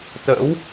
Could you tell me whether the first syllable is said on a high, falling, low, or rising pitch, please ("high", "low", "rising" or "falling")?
rising